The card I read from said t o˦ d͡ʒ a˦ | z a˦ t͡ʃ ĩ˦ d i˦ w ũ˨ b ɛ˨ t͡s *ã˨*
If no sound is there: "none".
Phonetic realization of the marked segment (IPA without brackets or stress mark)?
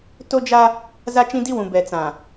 ã˨